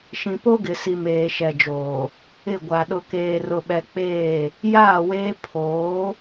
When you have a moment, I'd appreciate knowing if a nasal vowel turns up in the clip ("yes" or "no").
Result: yes